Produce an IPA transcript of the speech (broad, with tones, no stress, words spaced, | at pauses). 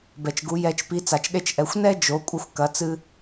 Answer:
bɛ˩t͡ʃɡu˩˧ jɛ˧t͡ʃpi˧˥ t͡sa˩t͡ʃɗe˧t͡ʃʔɛ˩˧xʷ nɛ˥d͡ʒo˩˧ kʷʼɐ˧xʷkɐ˩˧t͡sɨ˧